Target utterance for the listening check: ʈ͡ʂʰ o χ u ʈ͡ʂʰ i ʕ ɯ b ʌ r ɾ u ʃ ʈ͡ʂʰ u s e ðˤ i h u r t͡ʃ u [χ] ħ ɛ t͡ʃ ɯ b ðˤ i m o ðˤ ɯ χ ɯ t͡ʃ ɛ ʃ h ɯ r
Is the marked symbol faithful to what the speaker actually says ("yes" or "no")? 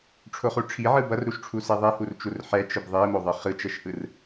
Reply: no